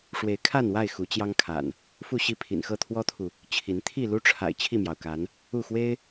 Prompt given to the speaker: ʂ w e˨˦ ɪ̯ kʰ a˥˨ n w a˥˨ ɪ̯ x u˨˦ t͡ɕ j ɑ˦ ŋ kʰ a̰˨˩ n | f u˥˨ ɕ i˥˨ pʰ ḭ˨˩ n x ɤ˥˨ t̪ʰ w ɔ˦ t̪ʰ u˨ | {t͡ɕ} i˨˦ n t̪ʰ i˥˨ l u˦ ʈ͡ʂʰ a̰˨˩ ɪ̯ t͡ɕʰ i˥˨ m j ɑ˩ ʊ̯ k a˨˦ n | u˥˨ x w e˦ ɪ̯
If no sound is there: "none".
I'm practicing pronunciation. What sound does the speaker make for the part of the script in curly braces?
t͡ɕʰ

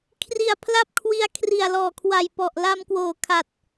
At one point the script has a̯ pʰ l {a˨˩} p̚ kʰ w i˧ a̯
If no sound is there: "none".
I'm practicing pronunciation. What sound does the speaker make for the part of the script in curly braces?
a˥˩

